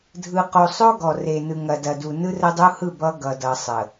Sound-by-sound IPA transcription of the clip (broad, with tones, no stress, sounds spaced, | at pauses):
dʱ ɯ˨ q o˨ sˤ o˦ ɡ ɔ˨ r e˨ n ɯ˨ ŋ ɐ˨ d ɐ˨ d u˨ n ɯ˦ r ə˦ dˤ u˦ h ɯ˦˨ b ʌ˦ ɡ ʌ˨ d ʌ˨ sˤ ə˨